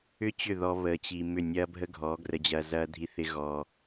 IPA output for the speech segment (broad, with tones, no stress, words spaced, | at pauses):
ʏ˦ t͡ɕʏ˦˨ðɔ˧ βəː˨t͡ɕi˨ mʏ˦˨nʲɐː˦bʱə˦ ɡʱɔ˨˦ ɡrə˧d͡ʑɐː˧ zɐː˧dʱi˧θɪ˧ ɣɔː˧